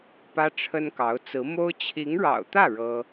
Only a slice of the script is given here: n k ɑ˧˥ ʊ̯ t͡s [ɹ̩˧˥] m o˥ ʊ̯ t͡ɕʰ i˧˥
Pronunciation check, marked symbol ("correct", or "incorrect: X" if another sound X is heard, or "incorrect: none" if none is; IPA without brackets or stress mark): correct